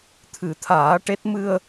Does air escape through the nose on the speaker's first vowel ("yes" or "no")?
no